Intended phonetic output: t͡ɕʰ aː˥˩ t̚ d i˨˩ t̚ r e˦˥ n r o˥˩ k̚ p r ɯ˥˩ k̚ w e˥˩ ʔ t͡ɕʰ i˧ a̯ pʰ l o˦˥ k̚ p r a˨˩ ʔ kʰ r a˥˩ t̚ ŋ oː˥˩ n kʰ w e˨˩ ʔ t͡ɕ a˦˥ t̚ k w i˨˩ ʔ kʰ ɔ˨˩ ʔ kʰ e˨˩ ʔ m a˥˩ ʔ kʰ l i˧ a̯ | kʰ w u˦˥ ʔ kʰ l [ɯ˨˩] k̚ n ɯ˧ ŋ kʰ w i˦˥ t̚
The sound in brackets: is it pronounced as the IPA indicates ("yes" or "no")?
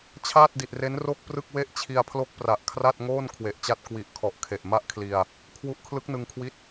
no